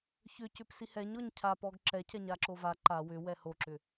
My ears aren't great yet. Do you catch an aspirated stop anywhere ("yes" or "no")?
yes